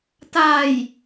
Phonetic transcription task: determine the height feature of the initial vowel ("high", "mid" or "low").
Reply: low